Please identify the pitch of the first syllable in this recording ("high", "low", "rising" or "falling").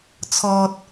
low